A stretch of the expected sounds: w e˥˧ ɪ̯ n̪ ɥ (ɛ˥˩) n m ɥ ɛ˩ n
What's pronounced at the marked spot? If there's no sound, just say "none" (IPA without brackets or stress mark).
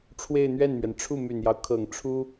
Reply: ɛ˥˩